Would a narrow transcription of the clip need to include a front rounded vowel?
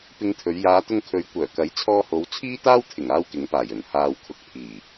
yes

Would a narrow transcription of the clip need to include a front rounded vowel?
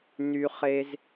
yes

